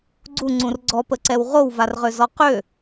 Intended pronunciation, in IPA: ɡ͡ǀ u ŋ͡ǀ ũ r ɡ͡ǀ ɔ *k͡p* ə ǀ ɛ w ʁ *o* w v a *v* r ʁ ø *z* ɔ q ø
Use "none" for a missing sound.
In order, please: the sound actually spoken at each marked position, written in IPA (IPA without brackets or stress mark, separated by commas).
p, o, none, z